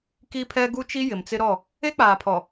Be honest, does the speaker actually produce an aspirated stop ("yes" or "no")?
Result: yes